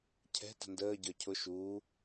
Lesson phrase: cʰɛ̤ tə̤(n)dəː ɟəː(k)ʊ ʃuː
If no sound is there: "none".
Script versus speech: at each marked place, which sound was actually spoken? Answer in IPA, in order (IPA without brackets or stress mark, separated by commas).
n, cʰ